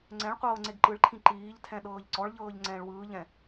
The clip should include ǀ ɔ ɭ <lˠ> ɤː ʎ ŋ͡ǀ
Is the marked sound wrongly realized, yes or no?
yes